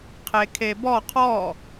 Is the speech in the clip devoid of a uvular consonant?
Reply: no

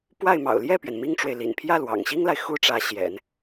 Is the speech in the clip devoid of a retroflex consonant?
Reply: no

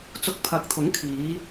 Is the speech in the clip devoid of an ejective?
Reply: yes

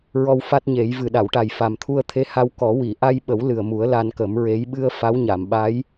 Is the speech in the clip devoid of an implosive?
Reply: no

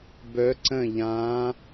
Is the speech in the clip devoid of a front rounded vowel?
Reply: no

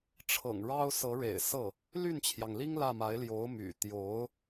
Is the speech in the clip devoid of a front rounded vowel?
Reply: no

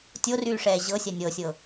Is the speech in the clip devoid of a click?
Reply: yes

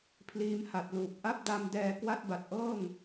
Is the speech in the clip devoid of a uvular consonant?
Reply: yes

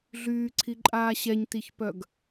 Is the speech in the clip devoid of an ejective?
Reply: no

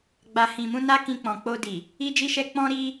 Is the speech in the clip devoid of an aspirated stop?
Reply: yes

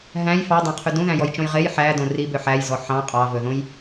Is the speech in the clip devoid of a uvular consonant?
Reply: no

